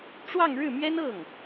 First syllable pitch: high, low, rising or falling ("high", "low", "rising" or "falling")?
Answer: falling